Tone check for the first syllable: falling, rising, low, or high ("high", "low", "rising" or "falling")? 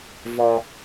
low